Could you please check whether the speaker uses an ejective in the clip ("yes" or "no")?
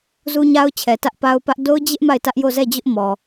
no